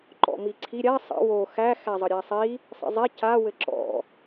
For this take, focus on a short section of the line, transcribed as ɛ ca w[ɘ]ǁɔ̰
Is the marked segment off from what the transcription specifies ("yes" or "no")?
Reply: no